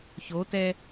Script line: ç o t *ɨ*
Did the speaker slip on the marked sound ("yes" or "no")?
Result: yes